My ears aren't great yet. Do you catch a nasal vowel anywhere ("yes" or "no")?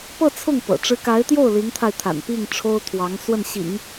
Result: no